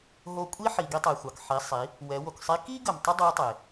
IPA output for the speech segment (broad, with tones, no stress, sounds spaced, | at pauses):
ɦ o˧ kʷʼ i˥ ħ i˩ ɡ i˧ tˤ ɛ˩ xʷ ɑ˩ k ħ i˩˧ sˤ i˩˧ | w ɛ˩˧ w o˩ k sˤ i˧˥ k i˥ ɡ ə˩ m tˤ ə˥ dˤ ɛ˧˥ tˤ e˩